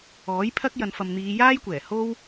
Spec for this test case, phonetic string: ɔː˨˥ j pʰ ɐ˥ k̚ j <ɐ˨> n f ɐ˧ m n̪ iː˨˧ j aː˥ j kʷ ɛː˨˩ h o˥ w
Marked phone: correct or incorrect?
incorrect